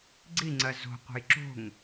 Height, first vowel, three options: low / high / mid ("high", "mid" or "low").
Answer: high